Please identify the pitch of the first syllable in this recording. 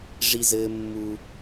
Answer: high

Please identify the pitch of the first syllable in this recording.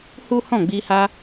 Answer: high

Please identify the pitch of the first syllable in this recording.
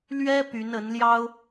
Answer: high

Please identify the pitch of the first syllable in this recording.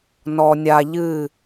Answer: high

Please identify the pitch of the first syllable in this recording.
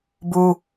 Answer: high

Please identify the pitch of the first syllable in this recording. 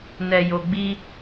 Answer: low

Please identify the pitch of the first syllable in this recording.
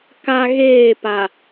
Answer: high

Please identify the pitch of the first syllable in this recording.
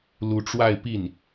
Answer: rising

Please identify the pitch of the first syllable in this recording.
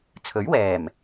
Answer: rising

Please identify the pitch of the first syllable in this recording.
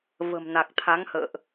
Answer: low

